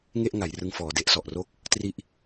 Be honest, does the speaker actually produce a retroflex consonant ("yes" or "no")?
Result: no